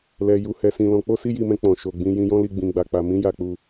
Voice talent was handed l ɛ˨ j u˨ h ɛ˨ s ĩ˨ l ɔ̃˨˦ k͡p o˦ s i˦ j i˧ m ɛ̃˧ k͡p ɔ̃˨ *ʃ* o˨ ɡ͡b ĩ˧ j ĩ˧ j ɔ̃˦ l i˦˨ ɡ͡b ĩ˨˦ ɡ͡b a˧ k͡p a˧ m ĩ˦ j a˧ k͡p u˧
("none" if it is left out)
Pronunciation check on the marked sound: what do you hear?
ʃ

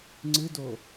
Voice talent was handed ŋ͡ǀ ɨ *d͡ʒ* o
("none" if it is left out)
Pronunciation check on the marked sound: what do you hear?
d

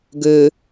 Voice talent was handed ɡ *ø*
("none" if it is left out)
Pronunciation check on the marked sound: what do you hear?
ø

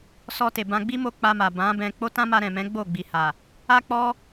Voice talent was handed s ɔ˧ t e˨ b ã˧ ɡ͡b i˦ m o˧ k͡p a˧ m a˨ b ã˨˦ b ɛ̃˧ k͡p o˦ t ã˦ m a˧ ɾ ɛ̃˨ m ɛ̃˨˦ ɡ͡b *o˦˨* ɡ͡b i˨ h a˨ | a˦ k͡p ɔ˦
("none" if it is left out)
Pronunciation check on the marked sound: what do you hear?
o˦˨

